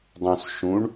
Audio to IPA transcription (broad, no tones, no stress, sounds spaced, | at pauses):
dˤ ũ s ʃ ũ ɳ